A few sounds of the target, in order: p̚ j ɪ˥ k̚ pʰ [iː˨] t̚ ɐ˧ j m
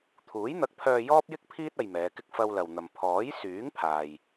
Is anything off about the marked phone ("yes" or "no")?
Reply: yes